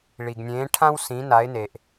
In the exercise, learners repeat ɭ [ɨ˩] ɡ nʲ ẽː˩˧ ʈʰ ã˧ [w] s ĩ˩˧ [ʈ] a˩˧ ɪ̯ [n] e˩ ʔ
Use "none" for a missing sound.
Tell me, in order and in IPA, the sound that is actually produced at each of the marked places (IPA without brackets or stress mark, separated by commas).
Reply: i˩, w, n, n